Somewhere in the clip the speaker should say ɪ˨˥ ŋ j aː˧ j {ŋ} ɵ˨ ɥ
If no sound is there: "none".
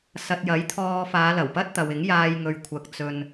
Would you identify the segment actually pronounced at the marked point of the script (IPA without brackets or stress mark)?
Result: ŋ